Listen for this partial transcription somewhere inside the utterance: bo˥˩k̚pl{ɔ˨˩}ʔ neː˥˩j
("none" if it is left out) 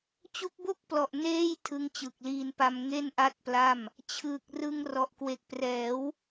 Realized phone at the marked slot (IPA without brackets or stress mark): ɔ˨˩